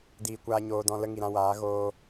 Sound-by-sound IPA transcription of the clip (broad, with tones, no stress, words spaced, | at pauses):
diː˧kʷaː˧ ɲoː˧dɔ̃˧ lə˦ŋi˨ɾã˧waː˨˦ ɣoː˧